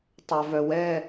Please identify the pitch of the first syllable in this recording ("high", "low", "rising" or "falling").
low